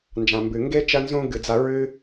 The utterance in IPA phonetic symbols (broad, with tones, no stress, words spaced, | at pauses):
nd͡ʒã˩mbɨ˩ŋɡe˥ t͡ʃɐ˥nzũ˥ ɡɨ˩d͡za˧ ɹɨ˥